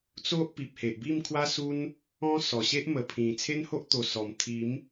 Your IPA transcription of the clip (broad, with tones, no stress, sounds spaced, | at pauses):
t͡s o˦ ʔ p i˨ p̚ h e˨ ʔ b i˥˧ m kʰ w a˦ s u˦ n | ɔ̃˦ s ɔ˨˩ ɕ e˦ ʔ m ə˨˩ pʰ ĩ˨˩ t͡sʰ e˦ n h o˦ ʔ t̪ o˨˩ s ɔ˨˩ m t̪ʰ i˨˦ m